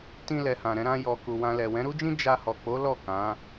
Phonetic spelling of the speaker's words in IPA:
tĩ˧lɛ˨hã˨ɾɛ̃˧ ɾã˧jɔ˨ ku˨wã˧lɛ˨ wɛ̃˨˦ɾu˦d͡ʒĩ˦ d͡ʒa˧ hɔ˨k͡po˨˦ lɔ˦˨ kã˨˦

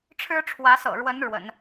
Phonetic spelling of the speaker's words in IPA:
ʈ͡ʂʰɻ̩˥ʈ͡ʂʰwä˧˥sɤ̰˨˩ɻwə˧˥n ɻwə̰˨˩˦n

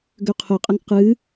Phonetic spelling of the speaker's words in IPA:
ɡøqʰʊqʼəŋ qɨ

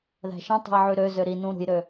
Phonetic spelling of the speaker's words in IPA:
ðæ̤ʃĩtˤṳi̯ ʕyɾøzø ɾi nũɾṳjɾø

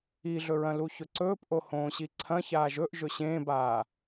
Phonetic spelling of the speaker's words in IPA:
iɮɵɹɐ̃ luçɵǀɵːpʔo hõːɕiǀʰɐ̃çaːʒ ɵʔ ʒɵɕẽːbaː

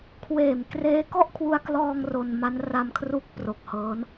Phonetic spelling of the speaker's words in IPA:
kʰweː˨˩m kreː˦˥kɔ˥˩ʔkʰwu˧a̯klɔː˧ŋ ro˧nma˦˥n ra˧mkʰru˦˥k̚ pro˨˩k̚hɤː˦˥n

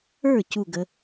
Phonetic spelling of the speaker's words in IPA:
ə˞˥˩ cu˥˩ɡə˩˧

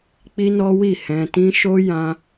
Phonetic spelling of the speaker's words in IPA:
k͡pi˦nɔ˦wi˦˨ hɛ̃˧tĩ˦ ʃo˦ jã˦

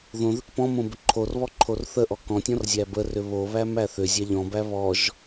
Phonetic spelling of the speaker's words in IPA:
ðõðʏk pɔ̃mõ bʏǃʰorβɔ ǃʰorθəʔɔ kɔ̃tʲɔ̃r zʲæbərʏ βoβæm æθʏzʲæ ʎɔ̃bæ βɔʒ

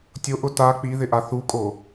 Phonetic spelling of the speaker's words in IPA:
tʲoʔʊ ta k͡piðɪʔa θukʼo

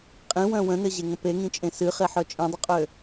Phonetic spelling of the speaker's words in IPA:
qʼĩwœ̃ wə̃nɘʑeŋə̃ peŋĩt͡ʃʼẽ sɨχeħœ t͡ʃʼĩdˤəqʼø

